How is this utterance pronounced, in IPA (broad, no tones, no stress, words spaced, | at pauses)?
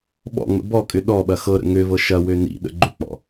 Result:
ɓɔ̰ŋ͡mə̰ bɔkʼʏ ɗɔɓɐ xɤɾə̰ ŋøvɤ ʃɐwø nḭɗə̰ ɡ͡ǃʏk͡pɔ̰